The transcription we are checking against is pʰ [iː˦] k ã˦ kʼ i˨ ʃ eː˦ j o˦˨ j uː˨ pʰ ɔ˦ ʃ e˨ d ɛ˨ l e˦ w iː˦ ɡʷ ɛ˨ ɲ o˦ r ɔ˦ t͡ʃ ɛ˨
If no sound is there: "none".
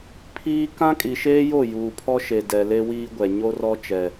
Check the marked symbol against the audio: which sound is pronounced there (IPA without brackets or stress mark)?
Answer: iː˦